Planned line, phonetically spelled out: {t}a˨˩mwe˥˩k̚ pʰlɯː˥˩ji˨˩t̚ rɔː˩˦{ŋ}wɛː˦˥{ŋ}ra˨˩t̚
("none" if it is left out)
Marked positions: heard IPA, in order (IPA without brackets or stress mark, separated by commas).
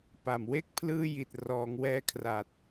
p, ŋ, kʰ